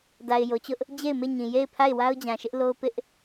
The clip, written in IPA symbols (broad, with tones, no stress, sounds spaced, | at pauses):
d a˨ ɪ̯ j o˨ t͡ɕ ʊ˦ ʔ | d͡ʑ e˦˨ ɪ̯ m e˦˨ ɲ ĩ˨ j e˦˨ ɪ̯ pʰ a˦˨ ɪ̯ w a˦ ʊ̯ d͡ʑ ã˨ ʃ ɪ˦ ʔ l o˦ ʊ̯ p ɪ˦ ʔ